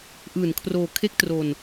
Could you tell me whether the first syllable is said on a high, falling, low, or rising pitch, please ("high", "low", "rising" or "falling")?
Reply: low